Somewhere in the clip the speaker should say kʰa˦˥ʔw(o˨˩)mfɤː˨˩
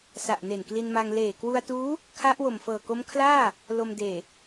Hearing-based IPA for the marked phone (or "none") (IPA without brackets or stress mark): o˨˩